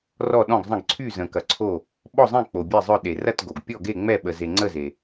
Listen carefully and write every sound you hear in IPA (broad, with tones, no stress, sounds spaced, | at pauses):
r ɔ˥˨ ɗ ɔ̃˥˨ ɡ zˤ ə̃˥˨ ɡ ǀʰ y˥˨ z ə̃˨ k ɐ˨ ǀʰ o˥˨ | ɓ ɔ˥˨ zˤ ẽ˥˨ k͡p o˨ bʲ e˥˨ zˤ œ˥˨ ɗ e˨ r ɐ˥˨ t ɡ o˨ ɡ pʲ ɔ˥˨ ɡ e˥˨ ŋ͡m ɛ˥˨ ɓ ə˨ z e˨ ŋ͡ǀ ə˥˨ z e˨